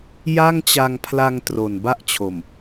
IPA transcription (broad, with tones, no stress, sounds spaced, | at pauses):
j a˥˩ ŋ t͡ɕ a˧ ŋ pʰ l a˧ ŋ t r o˨˩ n b a˥˩ ʔ t͡ɕʰ o˨˩ m